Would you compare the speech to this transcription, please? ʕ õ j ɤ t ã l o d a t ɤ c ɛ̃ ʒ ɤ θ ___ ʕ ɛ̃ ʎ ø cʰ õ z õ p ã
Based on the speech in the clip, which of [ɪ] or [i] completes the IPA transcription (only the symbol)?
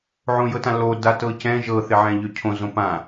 ɪ